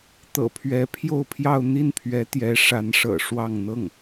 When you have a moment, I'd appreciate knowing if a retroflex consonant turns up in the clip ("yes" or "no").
yes